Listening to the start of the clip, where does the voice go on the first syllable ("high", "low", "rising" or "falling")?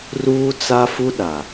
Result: high